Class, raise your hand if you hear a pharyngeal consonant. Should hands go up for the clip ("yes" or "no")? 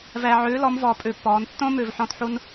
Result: yes